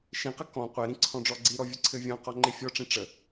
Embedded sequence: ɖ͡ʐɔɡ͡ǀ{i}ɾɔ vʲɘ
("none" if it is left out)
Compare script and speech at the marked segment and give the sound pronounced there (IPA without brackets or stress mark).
i